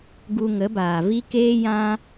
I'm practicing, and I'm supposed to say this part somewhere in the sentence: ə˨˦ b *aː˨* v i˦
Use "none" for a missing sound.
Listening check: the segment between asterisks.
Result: aː˨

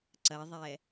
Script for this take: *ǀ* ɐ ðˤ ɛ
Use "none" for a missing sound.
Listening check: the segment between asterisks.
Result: ǀ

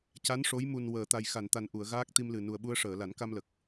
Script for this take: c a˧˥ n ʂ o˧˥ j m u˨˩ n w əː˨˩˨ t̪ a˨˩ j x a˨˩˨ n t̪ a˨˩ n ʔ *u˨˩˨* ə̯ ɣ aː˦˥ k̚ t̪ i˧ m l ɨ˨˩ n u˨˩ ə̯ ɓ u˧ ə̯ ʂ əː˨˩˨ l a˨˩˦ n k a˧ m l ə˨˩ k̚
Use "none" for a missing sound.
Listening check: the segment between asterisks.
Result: u˨˩˨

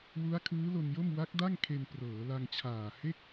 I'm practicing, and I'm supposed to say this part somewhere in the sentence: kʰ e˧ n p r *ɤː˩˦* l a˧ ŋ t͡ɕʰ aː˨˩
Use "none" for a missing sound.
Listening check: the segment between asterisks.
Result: ɤː˩˦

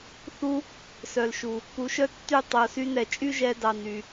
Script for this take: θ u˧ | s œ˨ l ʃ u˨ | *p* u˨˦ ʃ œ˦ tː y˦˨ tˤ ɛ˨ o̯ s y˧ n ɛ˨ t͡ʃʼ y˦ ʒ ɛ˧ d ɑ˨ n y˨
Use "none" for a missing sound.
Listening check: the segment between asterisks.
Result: p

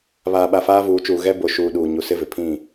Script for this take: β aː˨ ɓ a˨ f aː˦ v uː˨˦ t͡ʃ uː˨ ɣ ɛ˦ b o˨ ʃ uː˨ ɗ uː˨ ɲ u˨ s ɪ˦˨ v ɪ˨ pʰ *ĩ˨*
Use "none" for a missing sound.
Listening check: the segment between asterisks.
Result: ĩ˦˨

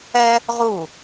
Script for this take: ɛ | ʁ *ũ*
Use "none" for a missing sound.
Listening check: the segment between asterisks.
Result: u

